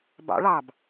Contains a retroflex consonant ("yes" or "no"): yes